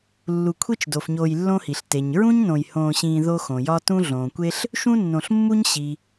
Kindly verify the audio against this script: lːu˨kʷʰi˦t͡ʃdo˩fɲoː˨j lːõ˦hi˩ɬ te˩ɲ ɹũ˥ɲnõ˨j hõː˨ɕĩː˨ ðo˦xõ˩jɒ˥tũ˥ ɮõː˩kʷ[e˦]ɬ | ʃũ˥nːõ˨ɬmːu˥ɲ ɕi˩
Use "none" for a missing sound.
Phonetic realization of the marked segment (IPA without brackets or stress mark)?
e˥